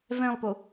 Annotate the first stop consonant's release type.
plain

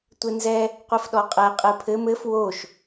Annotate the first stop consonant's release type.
plain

